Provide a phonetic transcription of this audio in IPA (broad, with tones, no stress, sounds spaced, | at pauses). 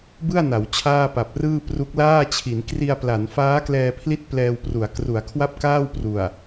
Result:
b ɯ˥˩ a̯ n a˩˦ w t͡ɕʰ aː˥˩ p a˨˩ p̚ r ɯː˥˩ p r u˦˥ k̚ l aː˥˩ t͡ɕʰ i˩˦ n k r i˧ a̯ p l a˩˦ n f aː˦˥ k l ɛː˧ pʰ l i˦˥ t̚ p l ɛː˧ w p r u˩˦ a̯ k r u˩˦ a̯ kʰ w a˥˩ p̚ k aː˥˩ w p r u˨˩ a̯